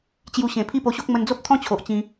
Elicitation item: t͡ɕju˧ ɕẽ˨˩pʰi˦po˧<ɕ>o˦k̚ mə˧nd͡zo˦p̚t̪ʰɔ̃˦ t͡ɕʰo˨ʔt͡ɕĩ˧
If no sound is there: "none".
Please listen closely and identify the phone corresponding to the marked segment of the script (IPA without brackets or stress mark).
ɕ